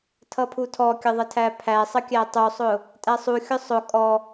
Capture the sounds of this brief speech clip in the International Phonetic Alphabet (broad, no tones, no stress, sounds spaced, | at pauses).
tʰ ʌ pʰ u tʰ ɔ kʲ ə ðˤ ə tʰ æ pʰ æ sˤ ə kʲ æ tˤ u sˤ ʊ | tʼ æ sˤ u xʲ ʊ sˤ ʊ kʼ ɔ